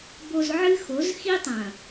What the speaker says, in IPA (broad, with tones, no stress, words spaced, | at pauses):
bo˨z ʕɨ˦xo˨˦z xi˦tˤɐ̃˨